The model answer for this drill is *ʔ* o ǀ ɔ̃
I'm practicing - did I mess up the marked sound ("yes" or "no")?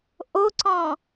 no